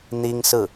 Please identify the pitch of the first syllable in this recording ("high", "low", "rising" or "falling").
high